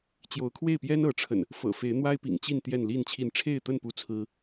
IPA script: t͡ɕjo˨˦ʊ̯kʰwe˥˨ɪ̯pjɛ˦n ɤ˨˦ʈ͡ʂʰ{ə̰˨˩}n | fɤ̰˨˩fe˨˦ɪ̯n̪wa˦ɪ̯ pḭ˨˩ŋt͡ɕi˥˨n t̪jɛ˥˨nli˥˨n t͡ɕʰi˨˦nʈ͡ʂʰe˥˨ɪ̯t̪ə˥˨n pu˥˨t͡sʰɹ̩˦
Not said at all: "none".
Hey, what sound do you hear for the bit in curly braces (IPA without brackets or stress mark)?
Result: ə̰˨˩